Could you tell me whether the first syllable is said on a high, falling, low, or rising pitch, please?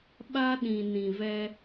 high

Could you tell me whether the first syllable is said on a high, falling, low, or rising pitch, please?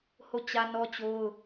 falling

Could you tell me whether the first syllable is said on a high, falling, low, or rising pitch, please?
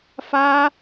high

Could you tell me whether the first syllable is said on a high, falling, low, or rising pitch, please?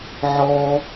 high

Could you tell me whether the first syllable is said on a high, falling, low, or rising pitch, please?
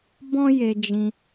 high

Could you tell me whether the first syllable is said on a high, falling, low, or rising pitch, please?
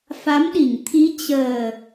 rising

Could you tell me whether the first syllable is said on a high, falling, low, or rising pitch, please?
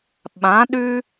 rising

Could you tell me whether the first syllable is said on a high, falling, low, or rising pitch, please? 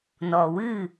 low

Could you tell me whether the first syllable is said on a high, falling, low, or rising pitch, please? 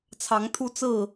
rising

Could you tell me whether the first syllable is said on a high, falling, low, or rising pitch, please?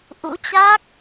rising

